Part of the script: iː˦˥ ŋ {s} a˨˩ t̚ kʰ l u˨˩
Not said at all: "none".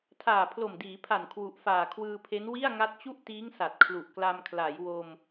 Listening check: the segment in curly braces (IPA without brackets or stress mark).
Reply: s